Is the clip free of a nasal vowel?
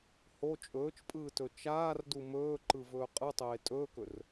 yes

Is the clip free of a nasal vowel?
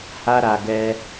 yes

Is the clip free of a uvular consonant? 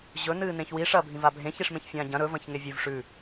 yes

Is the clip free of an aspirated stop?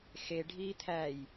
no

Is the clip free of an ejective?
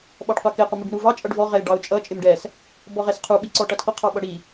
no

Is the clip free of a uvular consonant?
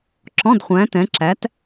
no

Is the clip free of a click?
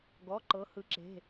no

